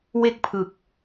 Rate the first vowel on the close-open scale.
mid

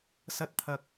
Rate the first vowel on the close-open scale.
open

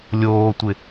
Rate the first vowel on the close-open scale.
mid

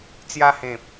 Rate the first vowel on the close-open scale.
open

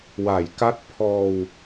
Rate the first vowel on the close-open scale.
open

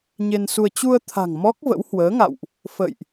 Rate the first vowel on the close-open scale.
mid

